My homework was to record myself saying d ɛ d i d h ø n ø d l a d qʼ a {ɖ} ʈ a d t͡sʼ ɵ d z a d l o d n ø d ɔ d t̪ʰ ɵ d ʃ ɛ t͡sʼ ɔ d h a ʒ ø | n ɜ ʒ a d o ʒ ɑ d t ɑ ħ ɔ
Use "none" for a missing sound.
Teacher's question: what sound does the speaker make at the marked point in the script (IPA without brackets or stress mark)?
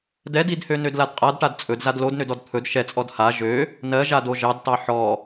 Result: d